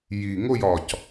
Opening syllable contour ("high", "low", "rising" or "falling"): low